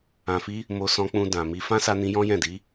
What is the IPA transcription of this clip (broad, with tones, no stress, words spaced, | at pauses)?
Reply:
ã˨fi˧ | mo˧sɔ̃˧k͡pũ˧ dã˨mi˧ fã˦sa˧nĩ˧jɔ̃˦ jɛ̃˦˨di˨˦